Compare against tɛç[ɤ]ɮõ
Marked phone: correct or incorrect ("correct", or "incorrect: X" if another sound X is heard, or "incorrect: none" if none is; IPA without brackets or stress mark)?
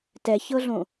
correct